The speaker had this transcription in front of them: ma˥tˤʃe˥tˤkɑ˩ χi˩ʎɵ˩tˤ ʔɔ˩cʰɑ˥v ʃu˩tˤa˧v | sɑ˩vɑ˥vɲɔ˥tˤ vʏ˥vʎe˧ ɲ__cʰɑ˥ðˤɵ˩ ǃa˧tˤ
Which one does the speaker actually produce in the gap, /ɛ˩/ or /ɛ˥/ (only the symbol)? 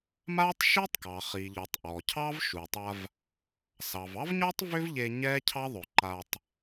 ɛ˥